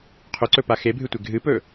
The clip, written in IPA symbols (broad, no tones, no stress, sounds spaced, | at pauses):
qʰ ɵ ǀ ɵ p a x e bʱ ɨ tʷ e ɡʱ ɨ p ɵ